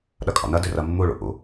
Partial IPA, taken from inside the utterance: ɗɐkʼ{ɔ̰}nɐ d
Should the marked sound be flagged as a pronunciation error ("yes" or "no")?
no